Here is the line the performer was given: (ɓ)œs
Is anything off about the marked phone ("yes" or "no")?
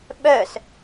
no